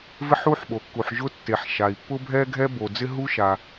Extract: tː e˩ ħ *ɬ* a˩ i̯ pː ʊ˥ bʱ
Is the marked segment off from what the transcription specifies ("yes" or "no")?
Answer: yes